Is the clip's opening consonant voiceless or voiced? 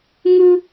voiced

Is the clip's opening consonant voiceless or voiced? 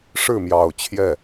voiceless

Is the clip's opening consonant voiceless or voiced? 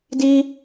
voiced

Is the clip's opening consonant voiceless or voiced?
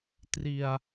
voiceless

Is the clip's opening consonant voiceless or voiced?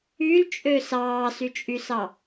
voiced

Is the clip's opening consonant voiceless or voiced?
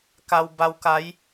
voiceless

